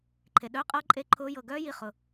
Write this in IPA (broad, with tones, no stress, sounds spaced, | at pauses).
ǃʰ e˨ ɗ œː˧˥˧ qʼ ʌː˦˥ ǃʼ e˦˥ ǃʰ ʊː˦˥ j ɤ˦˨ ɡ œː˦˥ j i˦˨ χ ʊ˨